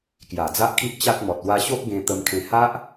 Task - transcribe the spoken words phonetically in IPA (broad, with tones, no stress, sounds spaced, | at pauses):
k j a˨˩ d͡z a˦ ʔ kʰ i˦ ʔ t͡ɕ a˦ t̚ m ɔ˨ t̚ w a˧ ɕ o˦ ʔ ɡ ẽ˧ t̪ ə˧ m kʰ ẽ˧ h a˦ ʔ